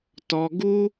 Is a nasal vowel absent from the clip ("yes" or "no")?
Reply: yes